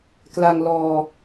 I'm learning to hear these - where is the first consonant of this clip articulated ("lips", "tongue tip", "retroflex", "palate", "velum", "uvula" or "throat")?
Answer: velum